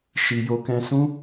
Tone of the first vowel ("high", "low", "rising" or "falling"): low